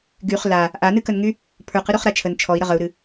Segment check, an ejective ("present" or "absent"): absent